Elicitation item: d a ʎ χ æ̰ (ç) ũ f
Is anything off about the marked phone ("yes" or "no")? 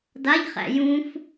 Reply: yes